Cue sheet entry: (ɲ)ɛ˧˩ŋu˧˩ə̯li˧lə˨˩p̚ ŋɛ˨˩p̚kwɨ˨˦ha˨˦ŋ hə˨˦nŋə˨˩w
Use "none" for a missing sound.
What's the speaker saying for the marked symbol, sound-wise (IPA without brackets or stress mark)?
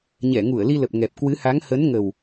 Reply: ɲ